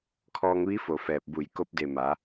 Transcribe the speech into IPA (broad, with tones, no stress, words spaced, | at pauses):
kʰɔː˧ŋʋi˧˥ fo˧˩fɛː˧˩p̚bu˧˩j ko˧˥p̚de˧˩ ma˩˧